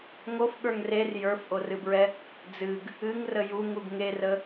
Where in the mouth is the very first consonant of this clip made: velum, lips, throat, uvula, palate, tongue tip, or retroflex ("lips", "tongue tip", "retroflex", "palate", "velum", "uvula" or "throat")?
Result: velum